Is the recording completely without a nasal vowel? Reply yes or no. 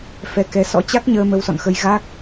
yes